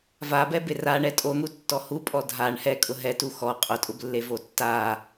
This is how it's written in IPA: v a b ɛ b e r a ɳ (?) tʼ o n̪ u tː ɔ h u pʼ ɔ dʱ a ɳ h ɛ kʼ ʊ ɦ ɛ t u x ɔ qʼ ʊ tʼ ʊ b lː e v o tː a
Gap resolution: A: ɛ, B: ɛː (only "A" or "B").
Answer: A